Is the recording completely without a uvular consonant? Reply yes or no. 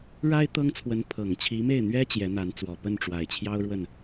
yes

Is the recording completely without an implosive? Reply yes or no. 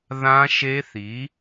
yes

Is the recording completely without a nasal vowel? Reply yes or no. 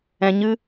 no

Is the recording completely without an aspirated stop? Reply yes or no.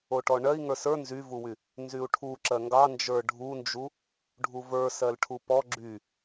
no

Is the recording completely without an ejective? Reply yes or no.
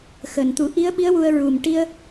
yes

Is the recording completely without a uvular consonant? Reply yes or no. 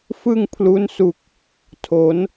yes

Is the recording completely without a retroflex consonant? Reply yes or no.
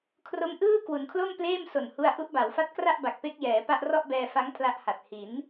yes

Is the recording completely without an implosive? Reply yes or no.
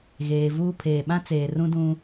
no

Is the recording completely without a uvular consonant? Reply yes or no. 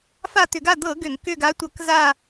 yes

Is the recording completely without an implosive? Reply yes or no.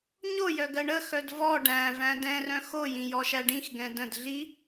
yes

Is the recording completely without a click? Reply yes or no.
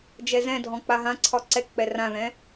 no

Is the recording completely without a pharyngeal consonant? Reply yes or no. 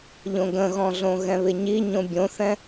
yes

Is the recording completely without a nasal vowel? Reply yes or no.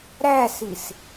yes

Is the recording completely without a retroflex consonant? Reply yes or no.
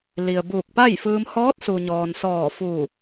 yes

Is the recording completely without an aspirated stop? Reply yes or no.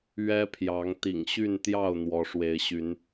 no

